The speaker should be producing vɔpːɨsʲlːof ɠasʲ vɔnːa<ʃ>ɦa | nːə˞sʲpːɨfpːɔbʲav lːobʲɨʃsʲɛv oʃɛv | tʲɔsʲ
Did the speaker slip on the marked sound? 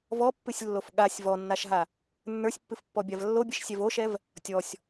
no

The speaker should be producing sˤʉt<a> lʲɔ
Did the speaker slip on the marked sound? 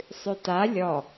no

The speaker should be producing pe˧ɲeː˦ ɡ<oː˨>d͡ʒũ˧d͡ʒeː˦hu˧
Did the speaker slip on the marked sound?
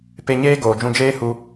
no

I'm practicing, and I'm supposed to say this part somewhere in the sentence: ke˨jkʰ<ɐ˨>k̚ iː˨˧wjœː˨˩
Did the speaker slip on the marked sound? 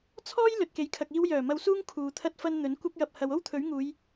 no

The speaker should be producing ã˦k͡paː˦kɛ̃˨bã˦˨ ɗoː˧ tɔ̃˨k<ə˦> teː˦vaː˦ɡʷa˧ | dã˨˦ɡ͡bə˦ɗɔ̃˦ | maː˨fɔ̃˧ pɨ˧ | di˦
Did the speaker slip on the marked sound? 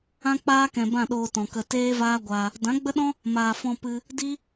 yes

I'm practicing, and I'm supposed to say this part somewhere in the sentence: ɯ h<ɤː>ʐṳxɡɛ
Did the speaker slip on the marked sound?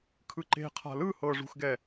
no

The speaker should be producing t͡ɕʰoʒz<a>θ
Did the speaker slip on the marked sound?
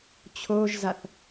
no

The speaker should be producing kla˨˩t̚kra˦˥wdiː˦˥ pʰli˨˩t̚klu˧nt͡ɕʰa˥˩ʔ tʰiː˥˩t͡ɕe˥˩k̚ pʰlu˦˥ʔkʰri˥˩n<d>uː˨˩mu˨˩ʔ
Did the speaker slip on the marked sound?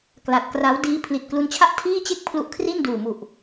no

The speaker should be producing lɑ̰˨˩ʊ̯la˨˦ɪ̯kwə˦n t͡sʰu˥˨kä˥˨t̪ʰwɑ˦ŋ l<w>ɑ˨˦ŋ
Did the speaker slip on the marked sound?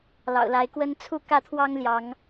yes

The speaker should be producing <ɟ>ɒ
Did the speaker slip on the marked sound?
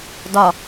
yes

